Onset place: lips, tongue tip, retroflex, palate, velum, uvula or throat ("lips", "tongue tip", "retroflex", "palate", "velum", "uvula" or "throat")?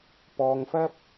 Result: lips